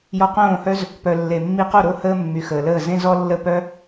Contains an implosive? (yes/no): no